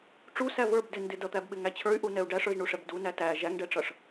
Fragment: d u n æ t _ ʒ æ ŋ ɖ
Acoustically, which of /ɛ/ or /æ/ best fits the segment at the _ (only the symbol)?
æ